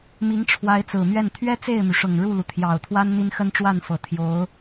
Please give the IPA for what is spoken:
m i˧˥ ŋ ʈ͡ʂʰ w a˧˥ ɪ̯ t͡s ɹ̩˨˩ m ɥ ɛ˥˩ n t̪ʰ ɥ ɛ˥ t͡s e˥˩ ɪ̯ m y˩ ʂ ʊ˨˩ ŋ ɻ u˥˩ l u˩ t̪ʰ j ɑ˨˩ ʊ̯ t̪ʰ w a˥ n n̪ i˥ n x ə˥ n ʈ͡ʂ w a˥˩ n f ɤ˨˩ t̪ʰ j o˧˥ ʊ̯

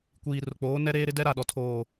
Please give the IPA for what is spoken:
kʷ iː˨ r ʊ˨ k͡p oː˨˦ n ɛ˦ ɾ eː˦ ɾ ɪ˦ d ɛ˦ ɾ a˦˨ ɗ ɔ˨ tʰ oː˨

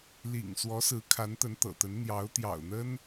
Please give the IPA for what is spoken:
l ḭ˨˩ ŋ s w ɔ˧˥ s ɹ̩˧˥ kʰ a˧˥ n t̪ ə˧˥ n t̪ ɤ̰˨˩ t̪ ə˧˥ n n̪ j ɑ˧˥ ʊ̯ t̪ j ɑ̰˨˩ ʊ̯ n̪ ə˥ n

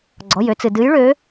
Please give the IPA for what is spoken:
ɡ͡ǀ ɔ˩˧˩ j ø˨˦ t͡s ɨ˩ d ɨ˨˦ j ɭ ø˨˦

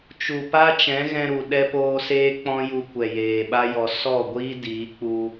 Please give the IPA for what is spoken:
t͡ʃ u˨ p a˦ t͡ʃ ɛ̃˨˦ ɣ ɛ̃˧ ɾ u˨ ɗ ɛ˧ p oː˧ s eː˦ k͡p ɔ̃˦ j u˧ kʷ ɛ˨ j eː˨ ɓ a˦ j ɔ˧ s ɔ˦˨ ɡʷ iː˦ d iː˨˦ k͡p u˧

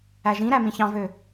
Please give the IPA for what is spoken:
æ ʒ ĩ ɾ æ m ĩ ç ɑ̃ v ø

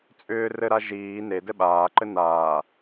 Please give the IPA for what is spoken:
t͡sʼ ʏː r ɘ ɾ a ʒ iː n e d ɘ ɓ aː ǃ ɘ n aː

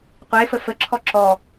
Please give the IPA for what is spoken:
qʷ e f ə f ə ǁʰ ɔ ǁ ɔ

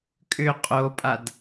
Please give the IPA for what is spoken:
kʼ ʏ qʼ o pʼ a d

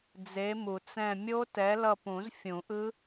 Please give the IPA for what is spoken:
d͡z e˨˥ m u˨ t͡s ɛ̃˦˨ mʲ o˦˥ t ɛ˨˥ l ʌ˦˨ p ũ˨˩˦ z fʲ ũ˨˩˦ ʔ ɯ˦˥

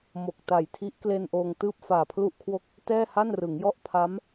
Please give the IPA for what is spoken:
m o˨˩ k̚ t a˨˩ j tʰ i˦˥ ʔ k l e˧ n ʔ oː˧ ŋ t ɯː˥˩ p̚ f aː˨˩ pʰ l u˥˩ ʔ kʰ w o˥˩ k̚ | t ɛː˥˩ h a˥˩ n r ɯ˩˦ ŋ j ɔ˥˩ ʔ pʰ a˦˥ m

